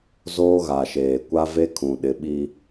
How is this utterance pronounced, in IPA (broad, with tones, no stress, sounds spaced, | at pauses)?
z oː˦ ɣ a˨ ʃ eː˨ kʷ a˦ v e˦ kʰ ũ˨ ɗ ɪ˨˦ ɓ i˦